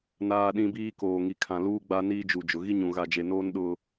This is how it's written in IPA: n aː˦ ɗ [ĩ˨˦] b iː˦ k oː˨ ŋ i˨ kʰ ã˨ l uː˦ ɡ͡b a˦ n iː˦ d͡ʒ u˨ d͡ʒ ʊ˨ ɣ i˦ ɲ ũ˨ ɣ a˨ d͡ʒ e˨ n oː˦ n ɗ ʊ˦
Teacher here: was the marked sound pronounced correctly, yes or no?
no